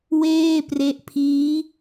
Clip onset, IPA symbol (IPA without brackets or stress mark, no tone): w